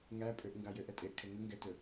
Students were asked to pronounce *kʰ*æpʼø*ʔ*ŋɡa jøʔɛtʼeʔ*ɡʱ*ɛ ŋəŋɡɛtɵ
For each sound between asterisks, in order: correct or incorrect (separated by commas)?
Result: incorrect, correct, incorrect